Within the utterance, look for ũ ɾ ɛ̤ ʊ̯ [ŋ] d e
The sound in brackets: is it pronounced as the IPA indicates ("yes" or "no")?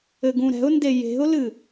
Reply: no